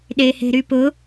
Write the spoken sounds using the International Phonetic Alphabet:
ɗ e h e̤ ɾ y p ʊ

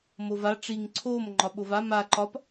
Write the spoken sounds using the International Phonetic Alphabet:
m o v a ʈ͡ʂ i ŋ ǀʰ o m ŋ͡ǃ ɒ ɓ o v a m a ǃ ɒ p

